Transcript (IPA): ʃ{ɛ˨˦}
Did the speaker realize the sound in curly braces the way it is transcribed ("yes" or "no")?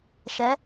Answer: yes